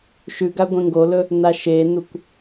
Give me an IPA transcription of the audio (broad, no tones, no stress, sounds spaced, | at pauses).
ʃ ʉ ɡ a ɡʷ ẽ ŋ ɡ o l ɵ | n a ʃ e n u kʷ